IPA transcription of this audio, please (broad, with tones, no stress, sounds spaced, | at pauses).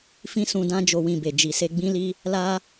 f ĩ˦ s ũ˧ d ã˦ d͡ʒ o˧ w ĩ˧ b e˨ d͡ʒ i˨ s e˧ ɡ͡b ĩ˦ l i˦ | l a˦